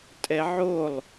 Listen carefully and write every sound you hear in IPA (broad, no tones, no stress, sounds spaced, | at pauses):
tʼ ɛ ʕ o lˠ